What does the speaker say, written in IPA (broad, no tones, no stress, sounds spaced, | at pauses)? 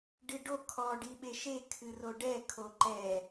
ɖ ɨ ɖ o kʰ ɔ ɖ i ɓ e ʃ e kʰ ɨ r o ɖ ɛ kʰ o ǃ ɛ